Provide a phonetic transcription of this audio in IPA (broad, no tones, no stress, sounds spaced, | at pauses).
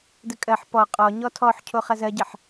d ə kʼ ɜ ħ p ɔ qʼ ɔ ɲ ɔ tʰ ɔ ħ cʰ o χ ɐ z ɜ ɟ ɐ ħ